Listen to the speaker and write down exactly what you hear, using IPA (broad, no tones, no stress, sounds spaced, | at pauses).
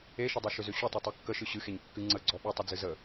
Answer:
e ʃ ə dˤ e ʃ ʏ z ʏ ɕ ʏ tˤ ɨ tˤ e kː ə ʃ ɨ ɕ ɨ x e ɲ kː ɨ ŋ͡ǀ ə ɡ͡ǀ ɔ ɓ ɨ tˤ ə d͡z ɨ z ə